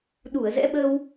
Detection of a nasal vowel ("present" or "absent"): absent